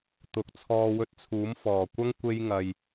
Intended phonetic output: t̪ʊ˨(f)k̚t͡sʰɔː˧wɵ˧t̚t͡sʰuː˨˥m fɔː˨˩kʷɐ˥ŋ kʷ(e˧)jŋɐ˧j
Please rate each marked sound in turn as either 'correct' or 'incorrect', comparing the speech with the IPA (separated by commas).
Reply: incorrect, incorrect